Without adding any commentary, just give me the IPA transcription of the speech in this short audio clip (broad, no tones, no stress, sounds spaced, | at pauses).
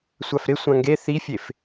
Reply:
sʷ a f ɾ ɪ sʷ ã ŋ ɡ e θ i fʲ e f